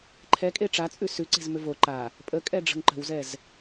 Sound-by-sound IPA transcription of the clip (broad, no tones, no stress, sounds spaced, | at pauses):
ǃʰ ɛ kʼ e ʈ͡ʂ a t͡sʼ ʉ s ʉ ǀ e̤ z m ʏ v o ǃ a | pʼ ə kʼ ɛ ɖ͡ʐ ə̤ ŋ ǃ ə̤ w z ɛ z